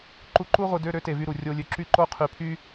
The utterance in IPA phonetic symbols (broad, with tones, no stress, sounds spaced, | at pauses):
ǃ u˧ ǃ u˥ ʁʷ ɯ˧ d ø˧˥˧ ɾ ø˥ t e˧˩ v y˧ ɾ u˩ rʲ o˧ lʲ ø˧˩ ǁ y˥˨ ǃ o˥ qʰ y˧˩ pʰ y˥